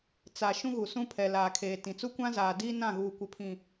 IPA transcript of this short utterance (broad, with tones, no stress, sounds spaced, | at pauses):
t͡s a˨ ʃ ũ˦ ɣ u˨ s ũ˦ pʰ ɛ˨ l aː˨ kʰ eː˨ t ĩ˨ t͡s u˦ kʷ ã˦ z aː˨ d iː˦ n ã˦˨ ɣ uː˨ kʷ ɪ˨ pʰ ĩ˨